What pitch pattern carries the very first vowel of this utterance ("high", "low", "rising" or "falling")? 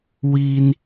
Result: high